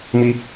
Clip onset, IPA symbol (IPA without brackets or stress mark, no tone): m